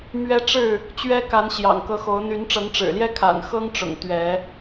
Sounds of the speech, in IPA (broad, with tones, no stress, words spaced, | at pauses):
mɥɛ˦ ʈ͡ʂɻ̩˥˨ | t͡ɕɥɛ˦ka˨˦n ɕjɑ̰˨˩ŋkɤ˨˦xo˨˦ʊ̯ n̪y˨˦n ʈ͡ʂɤ˨˦ŋʈ͡ʂɻ̩˨˩ljɛ˦ kʰa̰˨˩n xɤ˦ŋʈ͡ʂʊ̰˨˩ŋ t̪ɥɛ˨˦